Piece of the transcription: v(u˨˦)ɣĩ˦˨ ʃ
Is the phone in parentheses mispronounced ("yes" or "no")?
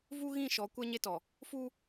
yes